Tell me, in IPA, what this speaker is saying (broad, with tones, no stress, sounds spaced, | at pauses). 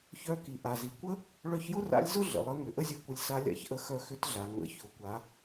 ç œ˧˥ k i˩ ʔ a˩ z i˩ kʷ ə˥ | ɭ œ˧ ç j ʊ˥ r a̰˧˥ lʲ z ʊ˥ ɮ ə̰˩ lˠ ə˧˥ ŋ ʏ˩˧ ʔ ə˥ zʲ œ˧ kʷ ə˧ lʲ s a˧˥ lʲ a̰˧ ç ʔ ə˧˥ x œ˧ x ʏ˧˥ t ɮ a˩ ŋ ə̰˩˧ ç ʊ˩˧ kʷ a˩˧